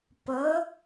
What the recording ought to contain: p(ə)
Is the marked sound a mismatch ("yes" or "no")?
no